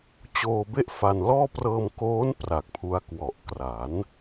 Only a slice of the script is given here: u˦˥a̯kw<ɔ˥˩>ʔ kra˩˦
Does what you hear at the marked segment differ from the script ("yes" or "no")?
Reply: yes